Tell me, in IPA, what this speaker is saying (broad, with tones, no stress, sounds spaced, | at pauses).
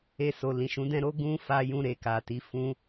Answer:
e˧ s o˨ l ĩ˨ ʃ ũ˨˦ d ɛ̃˦ ɾ o˦ ɡ ũ˦ f a˧ j ũ˧ ɾ e˨ k a˨ t i˨˦ f ũ˧